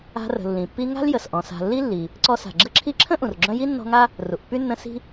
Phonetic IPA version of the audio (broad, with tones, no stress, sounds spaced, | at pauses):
a̤˦ r ə̤˨ lː ĩ˩ pː i˦ ŋ a̤˥ l j ə˩ s ʔ ɔ̃˩ s a̤˨ lː i˥ lː i˩ | ǀ ɔ˦ s a̤˩ ɡ͡ǁ ə˦ ǁʰ i˦ ǁʰ ə̃˥ ʔ ũ˩ r ɡ͡ǁ œ̃˦ j i˥ nː ɔ̤˦ ŋ a˥ | r u˩ ʔ pː y˥ nː ə̃˦ s i̤˥